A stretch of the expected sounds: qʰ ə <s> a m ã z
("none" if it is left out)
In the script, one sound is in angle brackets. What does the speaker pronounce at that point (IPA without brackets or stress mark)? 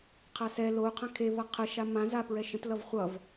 ʃ